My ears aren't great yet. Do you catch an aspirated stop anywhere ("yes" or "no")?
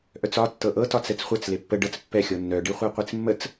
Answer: no